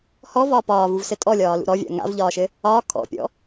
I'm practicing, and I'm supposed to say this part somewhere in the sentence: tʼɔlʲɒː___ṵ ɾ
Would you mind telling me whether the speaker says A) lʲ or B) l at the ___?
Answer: B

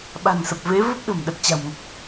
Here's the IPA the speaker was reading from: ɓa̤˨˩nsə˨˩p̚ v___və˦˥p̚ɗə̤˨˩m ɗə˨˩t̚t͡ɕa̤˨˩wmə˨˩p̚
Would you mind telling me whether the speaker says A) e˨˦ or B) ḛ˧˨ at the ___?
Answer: A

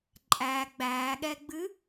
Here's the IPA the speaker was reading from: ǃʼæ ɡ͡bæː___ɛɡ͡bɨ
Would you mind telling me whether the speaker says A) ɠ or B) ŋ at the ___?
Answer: A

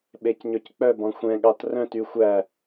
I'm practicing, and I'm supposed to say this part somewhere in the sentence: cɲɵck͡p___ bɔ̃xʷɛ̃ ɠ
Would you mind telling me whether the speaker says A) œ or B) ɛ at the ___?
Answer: A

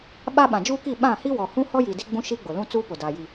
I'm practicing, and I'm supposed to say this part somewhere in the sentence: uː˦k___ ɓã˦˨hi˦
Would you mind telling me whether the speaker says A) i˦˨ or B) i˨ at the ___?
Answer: A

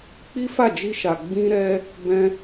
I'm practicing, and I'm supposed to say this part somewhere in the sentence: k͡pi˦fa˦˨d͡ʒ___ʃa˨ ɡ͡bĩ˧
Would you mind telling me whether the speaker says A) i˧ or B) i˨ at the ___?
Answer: A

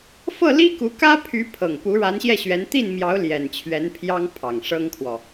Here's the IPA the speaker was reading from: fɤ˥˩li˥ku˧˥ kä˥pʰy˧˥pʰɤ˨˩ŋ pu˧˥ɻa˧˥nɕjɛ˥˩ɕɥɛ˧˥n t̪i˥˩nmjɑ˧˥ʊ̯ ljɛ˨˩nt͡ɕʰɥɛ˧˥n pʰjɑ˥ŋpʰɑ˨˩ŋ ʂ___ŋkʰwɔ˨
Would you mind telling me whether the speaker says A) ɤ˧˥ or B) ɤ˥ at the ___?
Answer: B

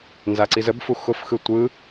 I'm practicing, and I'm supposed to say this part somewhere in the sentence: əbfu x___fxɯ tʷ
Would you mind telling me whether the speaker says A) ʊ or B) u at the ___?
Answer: A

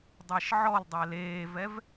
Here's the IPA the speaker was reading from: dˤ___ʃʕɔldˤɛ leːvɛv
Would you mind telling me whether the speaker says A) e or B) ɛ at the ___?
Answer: A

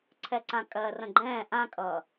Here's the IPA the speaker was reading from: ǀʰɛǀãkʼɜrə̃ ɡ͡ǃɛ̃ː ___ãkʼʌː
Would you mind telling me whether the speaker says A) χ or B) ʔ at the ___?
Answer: B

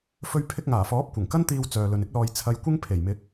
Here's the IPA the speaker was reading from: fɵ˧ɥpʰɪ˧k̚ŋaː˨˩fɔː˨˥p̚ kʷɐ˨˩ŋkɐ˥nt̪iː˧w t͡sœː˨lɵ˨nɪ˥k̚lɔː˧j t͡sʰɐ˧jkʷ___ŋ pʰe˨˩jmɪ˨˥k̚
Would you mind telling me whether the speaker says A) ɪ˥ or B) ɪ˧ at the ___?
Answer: A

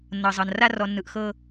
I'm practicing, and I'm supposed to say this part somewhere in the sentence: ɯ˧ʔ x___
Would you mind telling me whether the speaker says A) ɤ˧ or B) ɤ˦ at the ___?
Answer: B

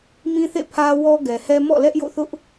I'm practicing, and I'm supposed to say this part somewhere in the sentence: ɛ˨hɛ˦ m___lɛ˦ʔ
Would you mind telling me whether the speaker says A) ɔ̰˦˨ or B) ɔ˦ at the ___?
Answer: A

